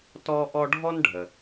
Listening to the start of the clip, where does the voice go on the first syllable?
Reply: high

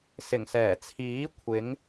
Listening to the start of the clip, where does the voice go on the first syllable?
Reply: low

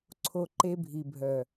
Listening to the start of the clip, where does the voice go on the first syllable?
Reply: low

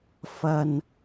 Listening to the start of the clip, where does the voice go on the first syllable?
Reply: high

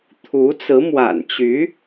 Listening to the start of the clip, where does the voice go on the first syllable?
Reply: rising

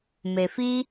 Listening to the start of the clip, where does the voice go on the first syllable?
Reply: low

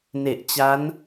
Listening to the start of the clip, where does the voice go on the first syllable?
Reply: low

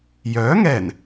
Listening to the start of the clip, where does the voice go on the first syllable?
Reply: rising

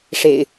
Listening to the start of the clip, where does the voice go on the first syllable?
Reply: low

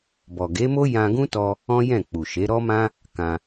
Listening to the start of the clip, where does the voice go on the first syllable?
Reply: low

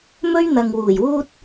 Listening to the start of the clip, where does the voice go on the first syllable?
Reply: high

